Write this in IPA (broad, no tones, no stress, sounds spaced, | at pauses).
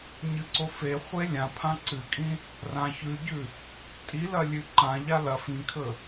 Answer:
ɲ ɨ ǀ o f e χʷ e lʲ ã pʰ ã ǀ ɨ kʼ ĩ | r ã ç ʉ ɟ ʉ | tʼ i l ɐ lʲ ʉ ǃ ã ʎ a l ɐ f ĩ kʰ ɵ